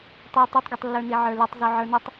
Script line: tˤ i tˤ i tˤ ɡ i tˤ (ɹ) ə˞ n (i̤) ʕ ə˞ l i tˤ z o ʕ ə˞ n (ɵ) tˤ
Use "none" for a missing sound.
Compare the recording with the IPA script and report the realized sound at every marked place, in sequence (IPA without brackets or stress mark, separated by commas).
lː, i, ɵ